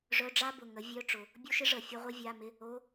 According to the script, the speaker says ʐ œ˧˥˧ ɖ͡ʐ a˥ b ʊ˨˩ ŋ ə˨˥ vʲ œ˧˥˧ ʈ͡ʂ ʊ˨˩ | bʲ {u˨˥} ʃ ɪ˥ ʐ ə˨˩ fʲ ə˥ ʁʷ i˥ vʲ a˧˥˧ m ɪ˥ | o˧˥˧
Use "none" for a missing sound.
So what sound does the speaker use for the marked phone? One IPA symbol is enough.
u˥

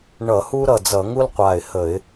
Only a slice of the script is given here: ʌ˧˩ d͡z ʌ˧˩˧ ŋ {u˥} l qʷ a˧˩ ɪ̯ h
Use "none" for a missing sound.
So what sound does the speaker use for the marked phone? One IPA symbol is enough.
u˥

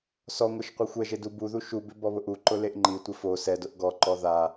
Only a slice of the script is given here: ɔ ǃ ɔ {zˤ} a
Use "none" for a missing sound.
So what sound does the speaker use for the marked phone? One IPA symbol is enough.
ð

